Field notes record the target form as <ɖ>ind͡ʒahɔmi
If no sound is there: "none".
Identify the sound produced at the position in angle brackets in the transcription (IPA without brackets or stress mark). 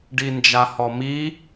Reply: ɖ